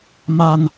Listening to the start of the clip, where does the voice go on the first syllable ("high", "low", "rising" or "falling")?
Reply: low